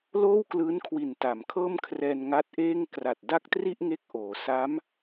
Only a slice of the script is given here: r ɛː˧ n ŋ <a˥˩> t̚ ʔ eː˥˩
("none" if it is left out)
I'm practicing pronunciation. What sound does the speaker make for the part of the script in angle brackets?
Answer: a˦˥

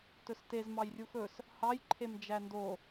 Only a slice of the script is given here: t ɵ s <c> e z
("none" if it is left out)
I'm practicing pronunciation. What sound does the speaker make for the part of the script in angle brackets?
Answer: t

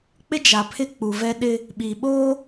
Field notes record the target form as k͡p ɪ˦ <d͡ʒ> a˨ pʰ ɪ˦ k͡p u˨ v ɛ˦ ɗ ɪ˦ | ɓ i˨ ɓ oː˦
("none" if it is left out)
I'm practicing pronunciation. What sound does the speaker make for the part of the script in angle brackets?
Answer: d͡ʒ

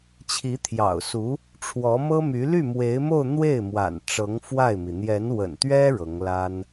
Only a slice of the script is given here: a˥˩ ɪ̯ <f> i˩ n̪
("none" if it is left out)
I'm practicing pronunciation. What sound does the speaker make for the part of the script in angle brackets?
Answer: m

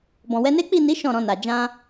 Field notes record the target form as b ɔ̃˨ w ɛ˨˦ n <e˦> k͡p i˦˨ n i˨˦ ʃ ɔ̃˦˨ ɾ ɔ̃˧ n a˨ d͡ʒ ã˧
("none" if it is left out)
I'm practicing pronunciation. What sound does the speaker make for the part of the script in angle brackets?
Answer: e˦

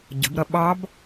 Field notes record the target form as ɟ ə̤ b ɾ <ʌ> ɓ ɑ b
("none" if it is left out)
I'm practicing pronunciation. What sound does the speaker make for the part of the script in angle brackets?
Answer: ʌ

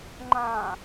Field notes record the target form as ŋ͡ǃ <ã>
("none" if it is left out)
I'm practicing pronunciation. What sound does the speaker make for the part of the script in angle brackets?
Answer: ã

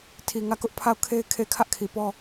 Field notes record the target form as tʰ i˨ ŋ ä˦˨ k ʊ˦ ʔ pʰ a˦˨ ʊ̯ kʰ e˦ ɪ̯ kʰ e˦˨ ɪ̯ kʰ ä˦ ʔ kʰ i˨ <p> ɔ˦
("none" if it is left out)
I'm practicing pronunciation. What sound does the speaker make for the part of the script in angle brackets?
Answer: p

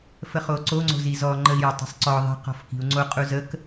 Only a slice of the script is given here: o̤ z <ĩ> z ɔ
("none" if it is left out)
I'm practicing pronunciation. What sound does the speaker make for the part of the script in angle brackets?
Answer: i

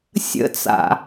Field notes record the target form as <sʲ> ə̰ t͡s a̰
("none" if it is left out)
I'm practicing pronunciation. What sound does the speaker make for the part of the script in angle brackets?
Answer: sʲ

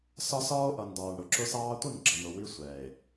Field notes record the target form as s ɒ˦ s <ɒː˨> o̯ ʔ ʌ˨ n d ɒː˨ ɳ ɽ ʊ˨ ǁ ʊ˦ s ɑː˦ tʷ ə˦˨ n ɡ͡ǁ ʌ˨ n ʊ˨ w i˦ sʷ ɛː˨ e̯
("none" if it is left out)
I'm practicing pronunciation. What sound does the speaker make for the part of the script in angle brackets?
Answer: ɒː˦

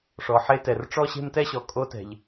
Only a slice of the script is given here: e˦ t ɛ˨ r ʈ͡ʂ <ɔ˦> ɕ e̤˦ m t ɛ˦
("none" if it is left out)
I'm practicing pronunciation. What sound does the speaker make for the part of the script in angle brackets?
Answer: ɔ˦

